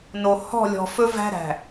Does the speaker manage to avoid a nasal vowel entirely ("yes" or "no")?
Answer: yes